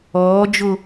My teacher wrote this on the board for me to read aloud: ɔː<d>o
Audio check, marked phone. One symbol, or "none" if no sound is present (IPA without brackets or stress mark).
d͡ʒ